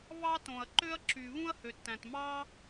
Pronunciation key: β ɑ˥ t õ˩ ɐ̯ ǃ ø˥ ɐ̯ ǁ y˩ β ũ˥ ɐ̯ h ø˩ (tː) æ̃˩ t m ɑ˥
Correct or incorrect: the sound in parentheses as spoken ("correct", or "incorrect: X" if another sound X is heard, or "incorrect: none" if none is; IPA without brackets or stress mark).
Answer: correct